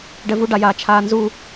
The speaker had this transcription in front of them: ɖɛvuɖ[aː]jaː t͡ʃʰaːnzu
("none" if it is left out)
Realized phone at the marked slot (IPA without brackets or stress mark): a